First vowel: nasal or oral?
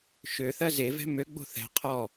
oral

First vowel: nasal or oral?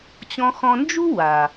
nasal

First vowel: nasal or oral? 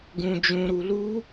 nasal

